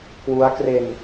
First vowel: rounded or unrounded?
rounded